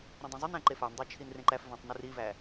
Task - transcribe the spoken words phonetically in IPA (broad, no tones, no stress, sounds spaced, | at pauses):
ɾ ũ dˤ ẽ zˤ y n æ̃ ǃ e f ɑ n dˤ æ t͡ʃʰ i n r ẽ ǃ æ f v æ̃ tˤ n u r i v æ